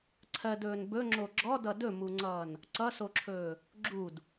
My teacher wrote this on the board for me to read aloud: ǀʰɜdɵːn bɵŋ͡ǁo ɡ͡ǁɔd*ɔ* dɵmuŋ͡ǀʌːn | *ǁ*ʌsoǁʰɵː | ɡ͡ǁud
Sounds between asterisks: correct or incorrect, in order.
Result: incorrect, incorrect

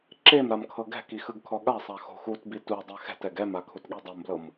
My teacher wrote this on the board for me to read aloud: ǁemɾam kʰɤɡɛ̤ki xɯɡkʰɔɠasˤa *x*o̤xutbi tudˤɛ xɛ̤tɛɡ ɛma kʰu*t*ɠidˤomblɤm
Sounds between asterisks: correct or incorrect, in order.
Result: correct, correct

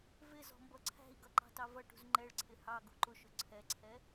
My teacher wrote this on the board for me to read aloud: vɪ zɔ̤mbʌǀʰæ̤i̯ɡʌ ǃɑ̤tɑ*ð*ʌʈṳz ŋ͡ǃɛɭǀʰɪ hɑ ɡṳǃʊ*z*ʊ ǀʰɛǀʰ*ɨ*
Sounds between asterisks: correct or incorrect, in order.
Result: incorrect, incorrect, incorrect

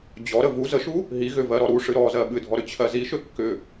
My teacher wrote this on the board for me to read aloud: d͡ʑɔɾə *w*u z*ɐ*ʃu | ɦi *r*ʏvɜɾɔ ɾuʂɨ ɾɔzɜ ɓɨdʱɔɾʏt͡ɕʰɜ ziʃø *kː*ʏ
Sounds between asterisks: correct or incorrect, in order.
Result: incorrect, incorrect, incorrect, correct

